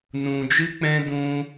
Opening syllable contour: low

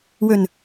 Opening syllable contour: low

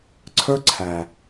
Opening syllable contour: high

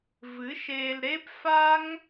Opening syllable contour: rising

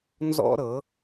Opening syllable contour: high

